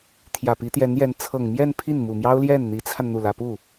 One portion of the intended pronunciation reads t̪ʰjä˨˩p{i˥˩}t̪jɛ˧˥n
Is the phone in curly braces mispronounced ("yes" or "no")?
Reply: yes